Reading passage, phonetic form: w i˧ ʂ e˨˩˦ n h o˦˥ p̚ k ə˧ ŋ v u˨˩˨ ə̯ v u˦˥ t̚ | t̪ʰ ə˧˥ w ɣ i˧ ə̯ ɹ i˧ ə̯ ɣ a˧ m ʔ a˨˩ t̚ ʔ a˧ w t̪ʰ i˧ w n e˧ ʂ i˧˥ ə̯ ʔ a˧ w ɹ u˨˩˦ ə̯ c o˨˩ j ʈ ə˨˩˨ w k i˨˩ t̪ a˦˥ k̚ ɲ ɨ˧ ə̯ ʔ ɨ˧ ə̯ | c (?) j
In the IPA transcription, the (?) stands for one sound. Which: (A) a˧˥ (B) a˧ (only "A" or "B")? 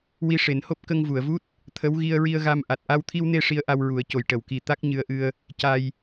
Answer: B